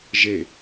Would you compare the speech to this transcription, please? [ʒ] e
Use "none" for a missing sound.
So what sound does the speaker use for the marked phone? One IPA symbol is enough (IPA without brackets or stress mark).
ʒ